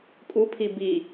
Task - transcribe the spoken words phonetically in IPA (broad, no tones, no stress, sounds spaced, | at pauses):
kʼ u pʰ i b i